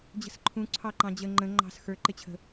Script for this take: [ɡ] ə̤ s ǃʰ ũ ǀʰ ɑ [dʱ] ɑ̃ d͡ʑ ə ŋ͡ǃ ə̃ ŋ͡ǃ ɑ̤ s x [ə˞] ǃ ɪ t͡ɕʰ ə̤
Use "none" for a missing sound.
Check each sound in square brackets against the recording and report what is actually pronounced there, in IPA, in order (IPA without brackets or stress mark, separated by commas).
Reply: d͡ʑ, ǃ, ə˞